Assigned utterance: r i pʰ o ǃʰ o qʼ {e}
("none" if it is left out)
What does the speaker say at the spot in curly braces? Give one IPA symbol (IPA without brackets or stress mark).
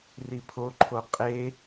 e